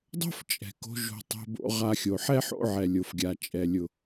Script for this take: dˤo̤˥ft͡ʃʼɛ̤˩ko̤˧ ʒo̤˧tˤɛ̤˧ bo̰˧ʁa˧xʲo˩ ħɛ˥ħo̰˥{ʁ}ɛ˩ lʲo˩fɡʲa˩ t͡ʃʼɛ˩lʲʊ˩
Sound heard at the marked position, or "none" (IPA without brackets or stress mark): ʕ